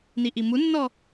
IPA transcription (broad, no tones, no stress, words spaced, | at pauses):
niʔimunːɔ